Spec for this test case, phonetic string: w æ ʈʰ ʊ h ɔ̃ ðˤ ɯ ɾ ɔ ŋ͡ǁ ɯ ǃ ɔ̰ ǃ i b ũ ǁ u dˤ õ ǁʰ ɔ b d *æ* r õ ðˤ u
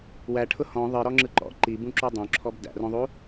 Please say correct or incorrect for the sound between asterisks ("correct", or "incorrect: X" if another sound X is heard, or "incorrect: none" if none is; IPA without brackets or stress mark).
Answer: incorrect: æ̰